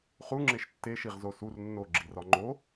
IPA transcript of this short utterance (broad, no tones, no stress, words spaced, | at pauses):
χuŋ͡ǁeʃ tːeʃiʁzo sur nːoɡ͡ǁirɒ ŋ͡ǃo